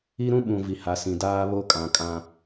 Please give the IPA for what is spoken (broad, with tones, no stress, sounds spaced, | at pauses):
i˦ ɾ ũ˦ ɓ ũ˨ v i˨ h a˨ s ĩ˨ d aː˦ β o˦ kʼ ã˨ kʼ ã˦